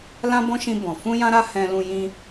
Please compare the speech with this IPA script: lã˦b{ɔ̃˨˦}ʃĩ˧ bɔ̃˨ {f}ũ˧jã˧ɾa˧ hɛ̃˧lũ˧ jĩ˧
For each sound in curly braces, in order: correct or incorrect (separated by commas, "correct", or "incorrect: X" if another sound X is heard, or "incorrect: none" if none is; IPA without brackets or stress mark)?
incorrect: ɔ̃˦, correct